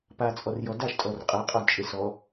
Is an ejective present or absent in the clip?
present